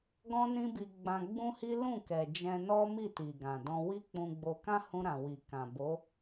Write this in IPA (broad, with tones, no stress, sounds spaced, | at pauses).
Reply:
ɡ ɔ̃˦ n ĩ˦ b i˧ ɡ͡b ã˧ ɡ͡b ũ˦ h i˦ l ũ˦˨ k ɛ˨ d͡ʒ ɛ̃˧ n ɔ˦ m i˦˨ t i˨ ɡ ã˨ d ɔ̃˧ w i˦ k͡p ũ˧ ɡ͡b o˧ k ã˦ h ũ˧ ɾ ã˨ w i˨ k ã˨ b o˨˦